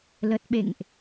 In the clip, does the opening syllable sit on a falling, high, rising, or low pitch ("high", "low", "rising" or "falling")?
low